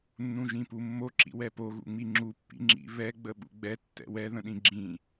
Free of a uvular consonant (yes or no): yes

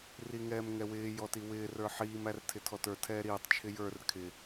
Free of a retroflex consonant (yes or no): yes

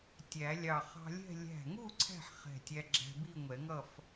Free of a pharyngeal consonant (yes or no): no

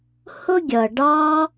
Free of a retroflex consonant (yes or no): no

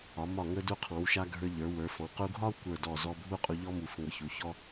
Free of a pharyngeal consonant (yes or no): yes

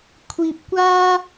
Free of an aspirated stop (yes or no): no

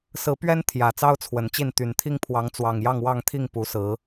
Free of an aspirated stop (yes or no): no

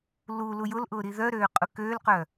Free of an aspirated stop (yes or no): yes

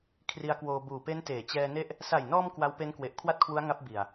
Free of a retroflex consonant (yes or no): yes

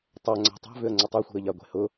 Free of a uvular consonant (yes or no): yes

